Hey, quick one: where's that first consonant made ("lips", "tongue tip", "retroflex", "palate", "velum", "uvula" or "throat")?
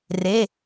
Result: tongue tip